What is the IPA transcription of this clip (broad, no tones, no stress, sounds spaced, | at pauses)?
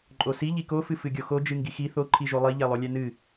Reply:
ǃʼ o s i ʎ i k o f ɨ f ɨ ɡʲ o x o d͡ʒ ɨ ŋ ɡ i x i θ o ǃʰ i ʒ o lˠ i ʎ ɛ lˠ o lʲ ɛ n ɨ